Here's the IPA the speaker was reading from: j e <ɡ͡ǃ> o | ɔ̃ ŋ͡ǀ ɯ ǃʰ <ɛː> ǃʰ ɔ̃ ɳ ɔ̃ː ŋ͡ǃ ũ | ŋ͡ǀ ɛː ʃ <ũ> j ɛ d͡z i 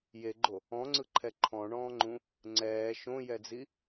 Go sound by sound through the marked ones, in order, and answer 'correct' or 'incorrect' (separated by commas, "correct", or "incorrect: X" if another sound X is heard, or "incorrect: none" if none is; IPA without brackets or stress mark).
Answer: correct, incorrect: ɛ, incorrect: õ